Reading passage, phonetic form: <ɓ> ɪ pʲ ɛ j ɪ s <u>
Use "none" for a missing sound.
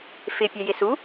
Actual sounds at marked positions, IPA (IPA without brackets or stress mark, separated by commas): f, u